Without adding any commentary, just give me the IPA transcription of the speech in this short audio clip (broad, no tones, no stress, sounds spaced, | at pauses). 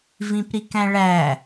v ĩ p ɾ i k æ̃ ɭ æ